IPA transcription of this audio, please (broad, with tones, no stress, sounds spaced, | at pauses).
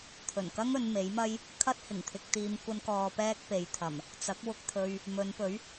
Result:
t̪ʰ ɵ˨˩ n k ɐ˥ ŋ ɵ˨˧ n m e˨˥ j m ɐ˥ j | kʰ ɐ˥ t̚ h ɪ˨˩ ŋ t̪ʰ ɪ˧ k̚ t̪ iː˧ m kʷ ɐ˧ n k ɔː˨ p ɛː˥ k̚ p e˨˧ j t̪ʰ ɐ˨˩ m | t͡s ɐ˨˥ k̚ w ʊ˧ k̚ t̪ʰ ɵ˧ ɥ | m ɵ˨˧ n p ɵ˨˥ ɥ